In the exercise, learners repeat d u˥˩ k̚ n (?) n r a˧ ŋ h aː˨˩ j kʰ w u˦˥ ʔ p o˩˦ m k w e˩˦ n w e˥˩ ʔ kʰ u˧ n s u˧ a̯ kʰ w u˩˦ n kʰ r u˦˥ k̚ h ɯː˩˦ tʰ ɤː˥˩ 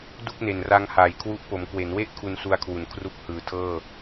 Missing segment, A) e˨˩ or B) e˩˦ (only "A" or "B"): A